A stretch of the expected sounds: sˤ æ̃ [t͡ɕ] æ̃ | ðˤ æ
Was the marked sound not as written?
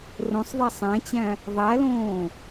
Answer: no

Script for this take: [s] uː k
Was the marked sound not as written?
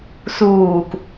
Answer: no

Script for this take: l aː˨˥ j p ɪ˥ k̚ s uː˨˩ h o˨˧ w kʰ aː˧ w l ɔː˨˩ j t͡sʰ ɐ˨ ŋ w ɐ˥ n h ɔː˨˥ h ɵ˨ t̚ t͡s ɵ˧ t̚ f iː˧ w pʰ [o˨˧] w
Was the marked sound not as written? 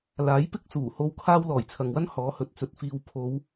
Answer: no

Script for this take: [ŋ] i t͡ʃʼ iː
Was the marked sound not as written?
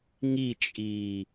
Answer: no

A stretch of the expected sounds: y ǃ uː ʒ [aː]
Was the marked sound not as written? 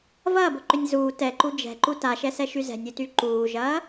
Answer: yes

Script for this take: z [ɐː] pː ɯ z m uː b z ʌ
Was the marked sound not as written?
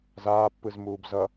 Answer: yes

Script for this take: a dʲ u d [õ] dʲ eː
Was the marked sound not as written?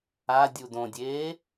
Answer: no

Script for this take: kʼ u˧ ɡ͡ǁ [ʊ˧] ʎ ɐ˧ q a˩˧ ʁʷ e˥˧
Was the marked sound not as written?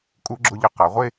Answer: no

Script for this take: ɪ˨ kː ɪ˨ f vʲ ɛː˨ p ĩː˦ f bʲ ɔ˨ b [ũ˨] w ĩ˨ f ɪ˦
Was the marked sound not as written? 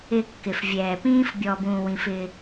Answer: yes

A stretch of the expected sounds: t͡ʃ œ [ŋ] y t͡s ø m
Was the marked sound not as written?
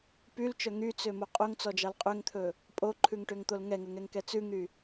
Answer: no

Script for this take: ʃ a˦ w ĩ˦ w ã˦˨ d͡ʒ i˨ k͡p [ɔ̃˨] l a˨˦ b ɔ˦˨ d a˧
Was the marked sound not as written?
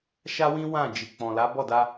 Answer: no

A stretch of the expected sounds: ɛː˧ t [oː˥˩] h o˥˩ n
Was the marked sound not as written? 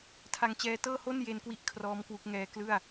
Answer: yes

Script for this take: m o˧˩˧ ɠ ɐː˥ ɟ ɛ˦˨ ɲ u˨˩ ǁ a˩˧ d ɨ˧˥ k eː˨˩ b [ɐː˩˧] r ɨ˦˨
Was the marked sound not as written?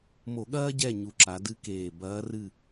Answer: yes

